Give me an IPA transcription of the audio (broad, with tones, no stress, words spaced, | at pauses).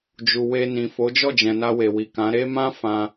d͡ʒu˨we˧ nĩ˨fo˨˦ d͡ʒɔ˦˨d͡ʒɛ̃˨ na˧we˨wi˨kã˨˦ ɾe˦mã˦ fã˧